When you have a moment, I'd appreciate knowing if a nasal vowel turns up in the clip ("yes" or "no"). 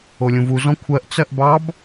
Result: yes